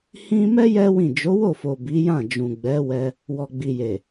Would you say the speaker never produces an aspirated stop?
yes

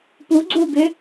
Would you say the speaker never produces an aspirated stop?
yes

